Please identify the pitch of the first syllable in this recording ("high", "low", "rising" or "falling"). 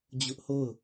high